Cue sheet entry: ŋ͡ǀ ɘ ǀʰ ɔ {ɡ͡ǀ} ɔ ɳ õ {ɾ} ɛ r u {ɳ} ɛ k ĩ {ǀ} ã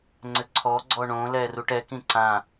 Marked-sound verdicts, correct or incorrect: correct, incorrect: l, incorrect: ʈ, correct

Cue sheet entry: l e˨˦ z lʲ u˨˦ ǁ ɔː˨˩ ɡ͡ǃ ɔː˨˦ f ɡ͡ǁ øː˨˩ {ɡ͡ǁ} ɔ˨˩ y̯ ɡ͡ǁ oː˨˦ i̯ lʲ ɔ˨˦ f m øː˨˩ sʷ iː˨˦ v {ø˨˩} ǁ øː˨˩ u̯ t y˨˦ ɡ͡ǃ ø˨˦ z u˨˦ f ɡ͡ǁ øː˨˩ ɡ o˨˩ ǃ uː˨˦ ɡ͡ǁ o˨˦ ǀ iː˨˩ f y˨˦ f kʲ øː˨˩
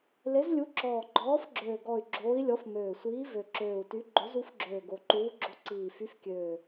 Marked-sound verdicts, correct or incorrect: incorrect: ɡ, correct

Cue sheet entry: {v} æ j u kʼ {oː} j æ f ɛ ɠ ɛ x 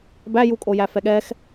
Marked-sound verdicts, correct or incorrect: incorrect: b, incorrect: o

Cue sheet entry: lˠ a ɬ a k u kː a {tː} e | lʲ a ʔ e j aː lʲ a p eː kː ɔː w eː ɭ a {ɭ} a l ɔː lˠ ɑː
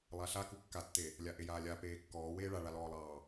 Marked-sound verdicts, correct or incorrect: correct, correct

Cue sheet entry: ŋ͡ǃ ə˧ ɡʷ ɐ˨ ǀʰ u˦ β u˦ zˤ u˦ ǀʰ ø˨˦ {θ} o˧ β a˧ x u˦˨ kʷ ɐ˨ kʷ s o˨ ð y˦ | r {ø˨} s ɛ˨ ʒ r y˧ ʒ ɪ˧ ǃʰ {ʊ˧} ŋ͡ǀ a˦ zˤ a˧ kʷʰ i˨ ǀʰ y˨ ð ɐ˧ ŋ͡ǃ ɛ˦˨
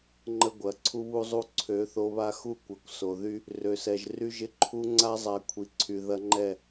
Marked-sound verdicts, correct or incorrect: correct, correct, incorrect: u˧

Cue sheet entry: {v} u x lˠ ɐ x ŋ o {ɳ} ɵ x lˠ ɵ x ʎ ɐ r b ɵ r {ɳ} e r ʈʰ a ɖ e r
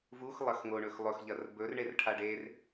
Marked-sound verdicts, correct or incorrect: correct, correct, correct

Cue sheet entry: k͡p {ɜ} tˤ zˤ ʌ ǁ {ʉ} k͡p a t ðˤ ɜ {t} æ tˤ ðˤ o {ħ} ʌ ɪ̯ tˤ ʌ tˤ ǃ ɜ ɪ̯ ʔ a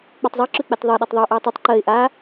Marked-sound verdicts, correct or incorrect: correct, correct, incorrect: ɗ, incorrect: ʔ

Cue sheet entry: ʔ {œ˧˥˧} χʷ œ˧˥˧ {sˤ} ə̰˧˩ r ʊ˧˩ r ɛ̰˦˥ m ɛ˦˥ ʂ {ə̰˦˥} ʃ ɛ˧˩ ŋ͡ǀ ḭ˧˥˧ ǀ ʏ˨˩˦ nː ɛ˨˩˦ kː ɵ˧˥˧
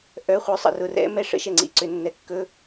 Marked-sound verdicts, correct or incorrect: correct, correct, correct

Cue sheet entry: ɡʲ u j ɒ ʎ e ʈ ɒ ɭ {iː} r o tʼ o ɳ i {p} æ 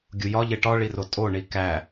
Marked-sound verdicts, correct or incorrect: incorrect: i, incorrect: k

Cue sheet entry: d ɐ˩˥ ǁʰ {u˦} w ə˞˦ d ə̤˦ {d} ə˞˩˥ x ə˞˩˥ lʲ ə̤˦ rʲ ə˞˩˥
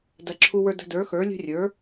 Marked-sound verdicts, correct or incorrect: correct, correct

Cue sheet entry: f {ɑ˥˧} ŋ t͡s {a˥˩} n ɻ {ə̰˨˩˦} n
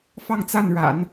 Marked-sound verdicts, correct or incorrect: correct, correct, incorrect: a̰˨˩˦

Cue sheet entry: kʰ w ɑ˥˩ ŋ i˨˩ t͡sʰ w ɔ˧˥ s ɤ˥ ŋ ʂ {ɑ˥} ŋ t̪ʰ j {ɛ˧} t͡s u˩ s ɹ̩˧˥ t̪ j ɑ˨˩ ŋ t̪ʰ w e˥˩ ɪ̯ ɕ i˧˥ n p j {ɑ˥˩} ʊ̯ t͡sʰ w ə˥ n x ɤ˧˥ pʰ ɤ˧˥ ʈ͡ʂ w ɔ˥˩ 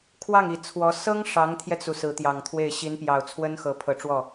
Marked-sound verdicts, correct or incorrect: incorrect: ɑ˧˥, correct, incorrect: ɑ˨˩

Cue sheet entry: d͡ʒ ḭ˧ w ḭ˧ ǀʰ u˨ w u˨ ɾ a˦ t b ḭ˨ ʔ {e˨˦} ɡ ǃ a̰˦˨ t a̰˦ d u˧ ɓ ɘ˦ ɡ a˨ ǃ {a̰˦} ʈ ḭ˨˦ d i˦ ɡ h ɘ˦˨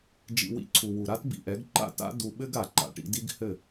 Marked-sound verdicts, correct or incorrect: incorrect: ɛ˨˦, incorrect: a̰˧

